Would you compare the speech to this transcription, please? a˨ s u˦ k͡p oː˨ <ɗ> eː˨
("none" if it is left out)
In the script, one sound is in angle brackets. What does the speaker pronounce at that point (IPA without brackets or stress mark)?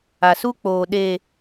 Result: ɗ